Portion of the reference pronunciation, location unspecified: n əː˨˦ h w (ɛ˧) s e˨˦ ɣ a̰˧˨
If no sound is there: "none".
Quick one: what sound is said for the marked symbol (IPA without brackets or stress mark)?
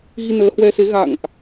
ɛ˧